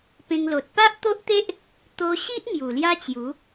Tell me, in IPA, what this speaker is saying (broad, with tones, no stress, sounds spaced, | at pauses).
p ẽ˧ ŋ l o˨ t̚ p a˦ ʔ t̪ o˦ ʔ t̪ e˦ ʔ | t̪ o˧ ɕ i˦ ʔ ŋ j u˨˩ l j a˦ t͡ɕ j u˨˦